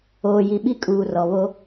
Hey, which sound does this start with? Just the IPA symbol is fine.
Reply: oː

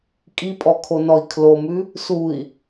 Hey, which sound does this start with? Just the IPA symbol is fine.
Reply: kʼ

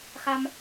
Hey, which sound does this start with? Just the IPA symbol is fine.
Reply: x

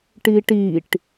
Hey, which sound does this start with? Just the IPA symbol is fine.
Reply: ʈ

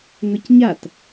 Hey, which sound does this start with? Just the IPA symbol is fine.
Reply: ŋ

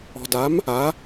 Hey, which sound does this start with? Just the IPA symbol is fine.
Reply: ɔ̤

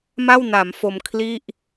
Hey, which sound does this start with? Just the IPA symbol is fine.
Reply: m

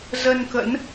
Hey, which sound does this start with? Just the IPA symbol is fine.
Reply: z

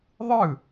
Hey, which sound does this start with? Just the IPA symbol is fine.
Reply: ðˤ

